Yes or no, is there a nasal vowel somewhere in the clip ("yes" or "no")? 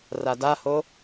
no